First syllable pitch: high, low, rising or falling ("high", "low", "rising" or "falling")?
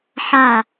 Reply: falling